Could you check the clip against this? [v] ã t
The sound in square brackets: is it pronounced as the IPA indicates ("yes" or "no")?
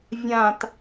no